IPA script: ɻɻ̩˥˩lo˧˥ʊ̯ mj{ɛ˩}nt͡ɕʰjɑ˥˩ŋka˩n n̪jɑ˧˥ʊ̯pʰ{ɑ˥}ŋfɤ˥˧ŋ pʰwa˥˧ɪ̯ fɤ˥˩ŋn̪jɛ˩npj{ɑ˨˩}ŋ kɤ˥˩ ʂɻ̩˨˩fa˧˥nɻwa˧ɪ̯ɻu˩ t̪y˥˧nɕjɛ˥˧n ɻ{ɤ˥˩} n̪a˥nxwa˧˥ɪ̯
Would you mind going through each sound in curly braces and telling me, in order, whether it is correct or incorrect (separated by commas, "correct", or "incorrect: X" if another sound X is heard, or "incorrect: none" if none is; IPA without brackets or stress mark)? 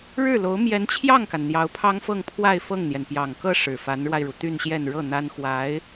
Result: incorrect: ɛ˧˥, correct, correct, correct